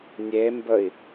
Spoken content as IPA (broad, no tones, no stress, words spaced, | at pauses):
nʲembəi̯